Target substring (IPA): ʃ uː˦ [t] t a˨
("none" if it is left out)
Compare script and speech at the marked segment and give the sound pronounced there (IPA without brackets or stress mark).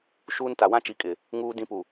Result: n